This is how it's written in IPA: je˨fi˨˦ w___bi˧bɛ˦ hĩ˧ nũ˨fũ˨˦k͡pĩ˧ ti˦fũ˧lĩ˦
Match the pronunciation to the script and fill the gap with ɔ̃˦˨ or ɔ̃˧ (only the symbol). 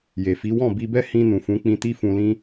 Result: ɔ̃˦˨